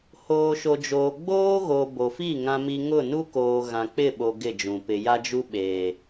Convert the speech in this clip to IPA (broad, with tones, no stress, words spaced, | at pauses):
hoː˨ʃo˨d͡ʒoː˨ ɡ͡boː˦ɣo˨ bo˨fi˦˨ ŋã˦mi˦ ŋʊ˦˨nu˦koː˨ ɣã˨k͡pɪ˦˨ɓo˨ ɡɪ˦˨d͡ʒũ˨ pɪ˨ja˦d͡ʒu˦ ɓe˨